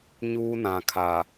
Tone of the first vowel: high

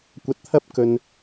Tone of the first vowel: rising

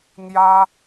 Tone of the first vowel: high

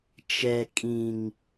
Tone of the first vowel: low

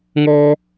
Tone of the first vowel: high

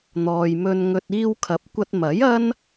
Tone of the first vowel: low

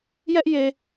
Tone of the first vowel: high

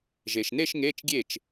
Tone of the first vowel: low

